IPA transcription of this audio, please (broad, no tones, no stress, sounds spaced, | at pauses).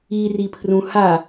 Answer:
i r i pʰ r ũ h a